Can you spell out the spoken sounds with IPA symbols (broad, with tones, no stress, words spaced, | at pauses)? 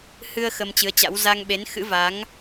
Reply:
hɨ˧ə̯ xə˧mt͡ɕɨ˨˦ə̯t͡ɕa̰˧˥w za˧ŋɓe˨˦n xɨ̰˧˥va˨˦ŋ